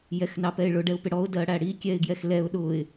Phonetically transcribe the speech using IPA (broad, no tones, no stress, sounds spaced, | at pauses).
j ɛ x n ɑ p ɛ ɪ̯ ɭ ʊ ɖ ɛ ʊ̯ p ɪ ɽ ɔ ʊ̯ d ɜ ɽ æ ɽ i kʲ ɛ ɪ̯ ɡ j ɛ x l ɛ ʊ̯ ɗ ʊ ɪ̯